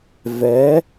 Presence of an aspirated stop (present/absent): absent